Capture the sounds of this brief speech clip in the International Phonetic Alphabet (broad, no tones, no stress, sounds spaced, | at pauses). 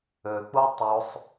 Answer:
ø k͡p u tˤ o sˤ